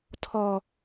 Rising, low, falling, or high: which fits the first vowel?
low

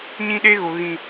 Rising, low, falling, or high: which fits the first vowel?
high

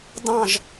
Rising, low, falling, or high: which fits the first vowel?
falling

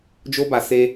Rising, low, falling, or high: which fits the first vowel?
high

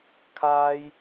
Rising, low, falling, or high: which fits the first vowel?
high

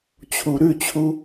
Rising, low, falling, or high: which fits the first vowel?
low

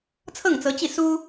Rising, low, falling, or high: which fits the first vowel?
falling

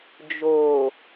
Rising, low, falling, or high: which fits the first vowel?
low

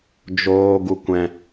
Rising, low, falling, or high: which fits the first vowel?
high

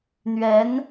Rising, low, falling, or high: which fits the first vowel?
rising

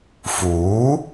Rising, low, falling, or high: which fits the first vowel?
rising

